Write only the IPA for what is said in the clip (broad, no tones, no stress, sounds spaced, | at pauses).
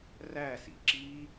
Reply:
r æ s ḭ ǁ i